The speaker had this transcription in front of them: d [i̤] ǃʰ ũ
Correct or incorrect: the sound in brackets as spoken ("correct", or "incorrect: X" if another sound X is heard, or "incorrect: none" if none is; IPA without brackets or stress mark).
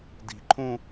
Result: correct